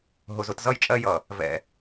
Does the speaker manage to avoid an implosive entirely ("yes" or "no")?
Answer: yes